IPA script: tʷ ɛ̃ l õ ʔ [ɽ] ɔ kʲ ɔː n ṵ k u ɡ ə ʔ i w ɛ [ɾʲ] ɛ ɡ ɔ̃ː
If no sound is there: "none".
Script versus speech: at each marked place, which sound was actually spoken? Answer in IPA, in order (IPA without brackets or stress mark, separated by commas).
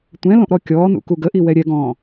ɾ, ɾʲ